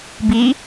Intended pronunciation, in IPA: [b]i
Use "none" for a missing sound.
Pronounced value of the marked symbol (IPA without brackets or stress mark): b